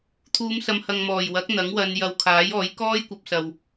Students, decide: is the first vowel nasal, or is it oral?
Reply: oral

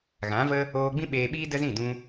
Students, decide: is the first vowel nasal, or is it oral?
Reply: nasal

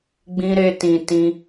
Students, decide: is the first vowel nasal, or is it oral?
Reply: nasal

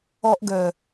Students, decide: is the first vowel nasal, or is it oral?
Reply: oral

